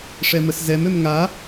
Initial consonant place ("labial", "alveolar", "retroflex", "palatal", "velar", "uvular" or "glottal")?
retroflex